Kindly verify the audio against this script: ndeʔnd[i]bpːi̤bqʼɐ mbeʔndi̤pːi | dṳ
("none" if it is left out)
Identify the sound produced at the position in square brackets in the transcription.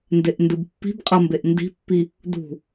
ɨ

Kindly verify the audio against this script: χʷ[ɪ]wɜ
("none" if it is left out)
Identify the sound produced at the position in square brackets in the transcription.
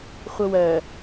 ə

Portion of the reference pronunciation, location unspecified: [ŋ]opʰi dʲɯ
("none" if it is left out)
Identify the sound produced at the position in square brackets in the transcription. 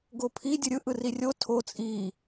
ɡ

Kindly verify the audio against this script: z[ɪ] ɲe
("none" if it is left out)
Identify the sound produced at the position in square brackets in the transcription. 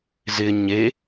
ɪ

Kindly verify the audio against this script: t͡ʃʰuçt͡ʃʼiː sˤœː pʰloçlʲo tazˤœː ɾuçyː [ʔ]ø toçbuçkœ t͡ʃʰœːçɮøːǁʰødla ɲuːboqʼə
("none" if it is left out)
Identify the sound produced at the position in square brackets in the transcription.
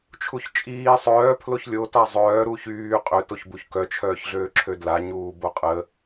qʼ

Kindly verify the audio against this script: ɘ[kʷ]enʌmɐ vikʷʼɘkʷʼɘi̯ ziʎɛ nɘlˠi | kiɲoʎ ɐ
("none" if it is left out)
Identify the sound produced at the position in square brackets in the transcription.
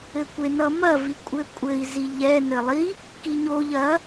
kʷ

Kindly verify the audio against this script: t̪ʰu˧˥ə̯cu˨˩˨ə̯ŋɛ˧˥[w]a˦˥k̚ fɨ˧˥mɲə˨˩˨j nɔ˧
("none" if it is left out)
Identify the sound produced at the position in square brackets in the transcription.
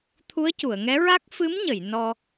ɹ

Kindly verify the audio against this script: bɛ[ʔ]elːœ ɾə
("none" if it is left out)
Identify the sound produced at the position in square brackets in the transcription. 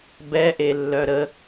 ʔ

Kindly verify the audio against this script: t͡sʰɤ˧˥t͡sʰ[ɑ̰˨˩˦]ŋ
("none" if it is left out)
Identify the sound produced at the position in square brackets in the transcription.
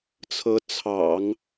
ɑ̰˨˩˦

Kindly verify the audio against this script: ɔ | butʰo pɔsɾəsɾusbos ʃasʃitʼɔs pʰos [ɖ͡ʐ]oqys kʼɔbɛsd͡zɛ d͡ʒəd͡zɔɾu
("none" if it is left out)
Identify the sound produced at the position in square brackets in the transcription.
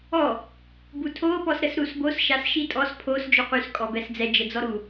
d͡ʒ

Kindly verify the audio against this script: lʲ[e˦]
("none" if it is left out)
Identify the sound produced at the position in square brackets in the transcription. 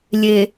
e˨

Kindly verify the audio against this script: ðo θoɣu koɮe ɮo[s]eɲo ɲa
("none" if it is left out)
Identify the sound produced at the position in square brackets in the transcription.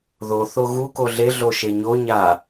ʃ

